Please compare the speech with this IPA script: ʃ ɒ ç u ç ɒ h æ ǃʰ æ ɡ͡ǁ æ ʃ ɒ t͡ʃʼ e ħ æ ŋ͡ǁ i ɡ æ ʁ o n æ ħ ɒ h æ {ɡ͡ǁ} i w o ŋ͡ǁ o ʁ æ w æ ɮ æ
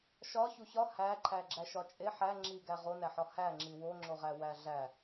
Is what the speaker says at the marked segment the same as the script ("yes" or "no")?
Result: no